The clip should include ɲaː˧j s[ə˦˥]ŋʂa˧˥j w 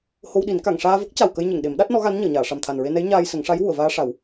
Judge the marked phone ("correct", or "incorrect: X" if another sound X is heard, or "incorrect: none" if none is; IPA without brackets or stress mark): incorrect: ə˨˩˦